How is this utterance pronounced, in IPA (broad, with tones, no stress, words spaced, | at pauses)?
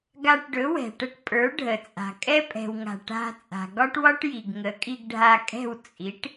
ɡa˧ʈɖɵ˩˥wɛ̤˩ʈə˧ʈ pʼə˞˩˥ɖʱə˩t͡sʼa̤˩ kʼɛ˥pʼɛ̤˩wŋa̤˩ ʈa̤˧ t͡sʼa̤˩ɡɒ˥ʈwɒ˥ʈ ji˩ɡŋə˩˥kʼi˧ɡ ɖʱa˧kʼɛ̤˥˩w t͡sʼi˩˥ʈ